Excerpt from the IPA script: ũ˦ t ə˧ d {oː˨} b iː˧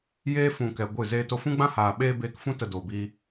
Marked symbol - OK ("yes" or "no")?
yes